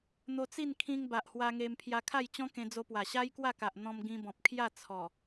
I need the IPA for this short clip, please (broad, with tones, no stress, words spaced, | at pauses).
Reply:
n̪o˧t͡si˥˧nkʰĩ˧ŋ ba˨ʔhwa˧ŋe˧m pʰja˧kʰa˥˧jt͡ɕɔ̃˦ kẽ˧d͡zo˧pwa˨˩ ɕa˦jkwa˥˧ka˨ʔ n̪ɔ̃˧mɡĩ˧bɔ̃˨p̚kʰja˥˧ t͡sʰɔ˨˩